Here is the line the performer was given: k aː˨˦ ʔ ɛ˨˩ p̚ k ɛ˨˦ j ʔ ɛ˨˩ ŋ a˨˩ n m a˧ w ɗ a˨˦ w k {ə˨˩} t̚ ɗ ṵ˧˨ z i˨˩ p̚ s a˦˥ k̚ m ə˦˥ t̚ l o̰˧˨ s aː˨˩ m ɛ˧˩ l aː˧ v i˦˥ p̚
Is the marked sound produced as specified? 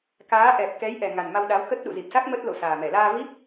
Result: no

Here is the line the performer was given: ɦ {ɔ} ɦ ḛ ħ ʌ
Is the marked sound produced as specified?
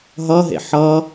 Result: no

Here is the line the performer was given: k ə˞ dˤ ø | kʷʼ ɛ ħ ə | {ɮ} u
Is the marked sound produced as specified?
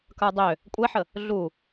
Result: yes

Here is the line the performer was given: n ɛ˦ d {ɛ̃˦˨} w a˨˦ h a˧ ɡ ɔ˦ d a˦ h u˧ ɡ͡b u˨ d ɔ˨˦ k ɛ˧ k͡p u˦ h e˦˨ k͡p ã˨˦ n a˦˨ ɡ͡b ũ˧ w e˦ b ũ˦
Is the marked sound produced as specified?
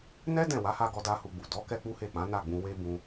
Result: yes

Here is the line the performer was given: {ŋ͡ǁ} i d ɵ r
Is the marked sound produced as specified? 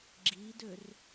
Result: no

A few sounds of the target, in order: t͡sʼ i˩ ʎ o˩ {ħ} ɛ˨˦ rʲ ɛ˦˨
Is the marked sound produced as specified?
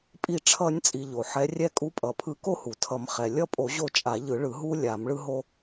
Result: yes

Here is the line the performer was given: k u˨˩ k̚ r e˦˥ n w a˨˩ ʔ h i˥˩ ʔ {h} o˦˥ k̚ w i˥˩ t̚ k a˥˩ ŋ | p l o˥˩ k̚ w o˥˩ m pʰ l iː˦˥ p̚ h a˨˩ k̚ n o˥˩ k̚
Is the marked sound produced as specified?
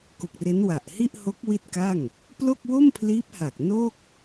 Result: yes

